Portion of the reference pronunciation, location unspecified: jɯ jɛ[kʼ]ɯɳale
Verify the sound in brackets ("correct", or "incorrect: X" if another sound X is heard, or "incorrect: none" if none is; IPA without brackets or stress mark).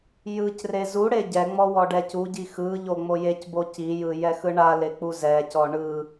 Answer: incorrect: x